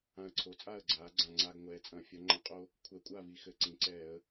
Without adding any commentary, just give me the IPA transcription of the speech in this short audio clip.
ã˧ ə̯ ǀʰ o˩˧ t͡sʼ aː˥˨ ə̯ ɡ͡ǀ aː˩˧ ɡ͡ǀ ã˨˩ ŋ͡ǀ a˧ ɡ ŋʷ ɛː˩˧ t͡sʼ ɐ̃˧˩˧ fʲ ɐ˩˧ ŋ͡ǃ ɐ̃˨˩ qʼ o˧ | kʷʰ ɛ˧˩˧ kʷʼ aː˥˨ v i˧ x ɘ˧˩˧ ǀ ĩ˩˧ ǀ ɛː˧˩˧ ə̯

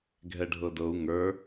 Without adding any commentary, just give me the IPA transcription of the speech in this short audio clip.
ɡʱ ɛ ɖʱ ɤ d ɤ u̯ ŋ ə˞

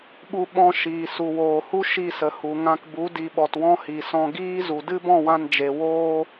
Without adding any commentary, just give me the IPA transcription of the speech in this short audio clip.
ɓ u˧ ɓ ɔ̃˧ ʃ iː˨ s u˨ w oː˨ h u˦ ʃ i˦˨ s ə˨ h u˨ ŋ ã˧ k b u˨˦ d i˨ ɓ ɔ˨ t w ɔ̃˦ h i˨ s ɔ̃˦ ɡ iː˦ z u˨ d ɨ˦ b ɔ̃˦˨ w ã˧ n d͡ʒ e˨ w oː˦

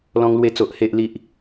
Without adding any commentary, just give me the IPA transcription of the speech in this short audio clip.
l ɔ̃˧ ŋ l w e˧ t͡s o˨ ʔ h e˨ ʔ l i˨ ʔ

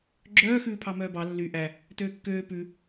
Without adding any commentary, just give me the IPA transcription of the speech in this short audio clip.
ɡ͡ǁ œː x ʉː pʰ ɑ m œː b ɑ lː y ʔ æ | t øː kː øː p ʉ

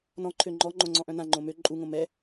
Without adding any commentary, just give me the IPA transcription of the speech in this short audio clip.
n ɔ̃ ǃʰ ø ŋ͡ǃ ɔ ŋ͡ǃ õ ŋ͡ǀ ɔ̃ ʔ œ̃ n ã ŋ͡ǃ õ m ø ǃʼ u ŋ õ m ɛ

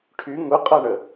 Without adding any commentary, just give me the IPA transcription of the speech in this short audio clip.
ʈʰ y ŋ ʊ qʼ ʌ ɳ ə

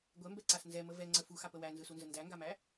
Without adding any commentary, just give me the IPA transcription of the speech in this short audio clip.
ɡʷ ɛ m b ɛ ǀ a s n z ɛ m ə v ɛ ŋ͡ǀ ə f u x a p ə w æ n z ɯ s u n z ə n d æ ŋ ɡ a m æ

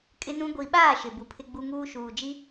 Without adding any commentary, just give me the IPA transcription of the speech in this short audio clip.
kʼ ɪ˦ n ũ˦ ɡʷ i˨ ɓ aː˦˨ ʃ ɪ˨ b u˨ pʰ ɪ˦ ɡ͡b u˦ ŋ uː˦ ʃ uː˨ d͡ʒ i˦

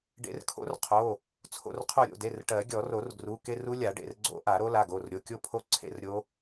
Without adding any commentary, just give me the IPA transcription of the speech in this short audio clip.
ɖ ḛ˨˩˦ r kʰ o̰˦˥ r qʰ o˩˧˩ | t͡sʰ o̰˧˩ r qʰ o˧˩ ɾʲ o̰˩˧˩ d e˩˧˩ r ʈ ɜ˨˩˦ ɡʲ ɔ˨˩˦ r o˨˩˦ r ɡ r u˩˧˩ k e˥˧ r u˦˥ lʲ a˨˩˦ ɖ ḛ˩˧˩ r ɡ͡ǀ o̰˦˥ ʔ a˨˩˦ ɾ o˦˥ l a˩˧˩ ɡ o˩˧˩ r ɾʲ o˩˧˩ kʲ o˥˧ pʰ o˦˥ ǀʰ ḛ˥˧ r ɾʲ o˦˥

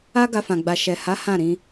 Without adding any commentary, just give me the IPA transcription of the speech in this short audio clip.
a˦ ɡ a˧ f ã˨ ɡ͡b a˨ ʃ ɛ˨ h a˨˦ h ã˦˨ ɾ ĩ˨˦

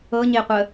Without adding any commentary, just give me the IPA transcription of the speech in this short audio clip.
ɤ ɲ e qʷ ə

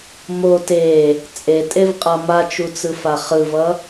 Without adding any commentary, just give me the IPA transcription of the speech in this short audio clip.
m o t e | t͡sʼ e tʼ e v qʼ ʌ m a t͡ʃ u t͡s ɯ f a χ ɯ v ʌ

